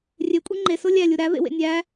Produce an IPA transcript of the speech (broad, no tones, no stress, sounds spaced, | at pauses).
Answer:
rʲ e kʷʼ e ŋ͡ǃ e s o lʲ æ lʲ u ɾ æ v ḛ w ḛ nʲ æ